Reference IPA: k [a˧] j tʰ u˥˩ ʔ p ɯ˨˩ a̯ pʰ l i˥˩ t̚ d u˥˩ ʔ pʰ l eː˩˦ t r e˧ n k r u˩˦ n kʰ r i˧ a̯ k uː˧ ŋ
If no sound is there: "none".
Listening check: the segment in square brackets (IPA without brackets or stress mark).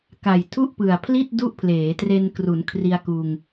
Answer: a˨˩